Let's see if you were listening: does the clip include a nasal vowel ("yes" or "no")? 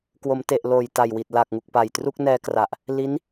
no